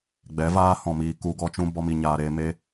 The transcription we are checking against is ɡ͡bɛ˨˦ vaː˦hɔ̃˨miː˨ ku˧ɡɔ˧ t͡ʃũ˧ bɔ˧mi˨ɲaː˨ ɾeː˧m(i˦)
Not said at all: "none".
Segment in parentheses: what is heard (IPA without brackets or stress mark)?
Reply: e˦